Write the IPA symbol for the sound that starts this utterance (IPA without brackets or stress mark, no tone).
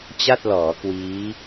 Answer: t͡ɕ